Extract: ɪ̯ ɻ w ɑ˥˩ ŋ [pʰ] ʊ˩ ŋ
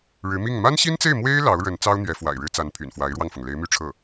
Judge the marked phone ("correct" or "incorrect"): incorrect